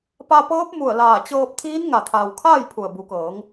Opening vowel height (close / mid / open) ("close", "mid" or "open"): open